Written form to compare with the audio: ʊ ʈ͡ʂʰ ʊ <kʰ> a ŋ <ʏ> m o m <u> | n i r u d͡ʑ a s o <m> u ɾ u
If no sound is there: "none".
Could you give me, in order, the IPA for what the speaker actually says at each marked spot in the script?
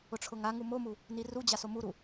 ŋ, u, u, m

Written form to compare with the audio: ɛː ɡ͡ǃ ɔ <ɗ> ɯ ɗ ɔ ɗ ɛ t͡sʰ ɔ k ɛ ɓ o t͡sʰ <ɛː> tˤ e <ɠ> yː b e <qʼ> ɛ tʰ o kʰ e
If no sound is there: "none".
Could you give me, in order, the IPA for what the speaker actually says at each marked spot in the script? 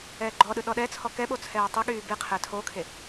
ɗ, ɛː, ɠ, qʰ

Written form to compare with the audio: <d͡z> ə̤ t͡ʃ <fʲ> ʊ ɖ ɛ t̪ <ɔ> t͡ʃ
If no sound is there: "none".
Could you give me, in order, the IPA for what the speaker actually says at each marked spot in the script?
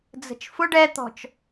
d͡z, f, ɔ̤

